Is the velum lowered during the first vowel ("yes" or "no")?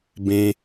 yes